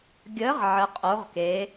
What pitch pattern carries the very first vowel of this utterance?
rising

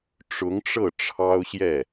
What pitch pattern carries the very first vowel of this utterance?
rising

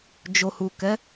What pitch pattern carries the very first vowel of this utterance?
low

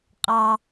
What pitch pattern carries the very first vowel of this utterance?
high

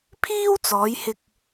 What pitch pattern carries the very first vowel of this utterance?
high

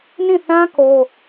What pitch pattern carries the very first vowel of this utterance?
falling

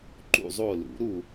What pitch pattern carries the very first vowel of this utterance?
falling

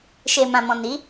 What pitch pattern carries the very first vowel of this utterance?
low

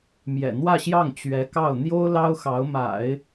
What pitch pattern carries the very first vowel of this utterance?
low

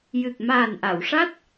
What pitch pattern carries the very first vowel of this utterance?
low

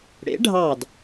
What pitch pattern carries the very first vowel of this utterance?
rising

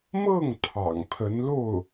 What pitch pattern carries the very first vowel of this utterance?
falling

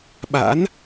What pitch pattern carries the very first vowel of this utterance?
rising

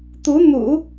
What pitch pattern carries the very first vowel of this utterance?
rising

